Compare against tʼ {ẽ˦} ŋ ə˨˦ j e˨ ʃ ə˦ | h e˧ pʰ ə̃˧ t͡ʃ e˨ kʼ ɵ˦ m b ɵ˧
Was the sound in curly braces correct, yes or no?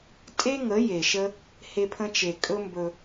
no